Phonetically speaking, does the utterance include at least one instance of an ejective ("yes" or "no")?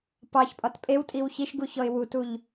yes